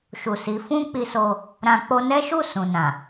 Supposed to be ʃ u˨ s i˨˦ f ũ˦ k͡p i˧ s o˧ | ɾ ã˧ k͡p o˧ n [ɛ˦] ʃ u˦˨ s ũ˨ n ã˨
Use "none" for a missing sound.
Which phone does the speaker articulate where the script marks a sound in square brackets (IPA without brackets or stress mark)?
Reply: ɛ˦